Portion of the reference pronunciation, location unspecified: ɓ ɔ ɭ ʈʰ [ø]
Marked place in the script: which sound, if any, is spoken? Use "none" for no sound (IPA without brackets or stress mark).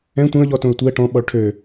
ø